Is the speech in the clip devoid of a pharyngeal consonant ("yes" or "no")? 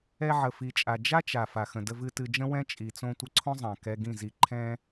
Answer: no